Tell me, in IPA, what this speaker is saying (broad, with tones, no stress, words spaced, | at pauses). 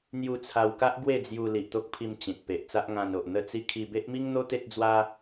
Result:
n̪ju˧t͡sʰa˧wka˦ʔ ɡwe˥˧d͡zju˧ li˨ʔt̪o˦k̚ pʰi˧m t͡ɕĩ˨t̚ pe˨ʔt͡sa˦ʔŋã˧no˨ʔ n̪ə˥˧t͡si˥˧ kʰi˧be˦ʔmi˦ŋn̪o˦ t̪e˦t̚d͡zwa˦